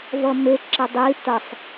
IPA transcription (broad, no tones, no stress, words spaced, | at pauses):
vʌme ǁʌdˤi tʌsˤ